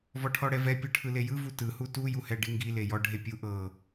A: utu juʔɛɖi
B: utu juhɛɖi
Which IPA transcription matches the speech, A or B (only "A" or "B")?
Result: B